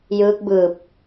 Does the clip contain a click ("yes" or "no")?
no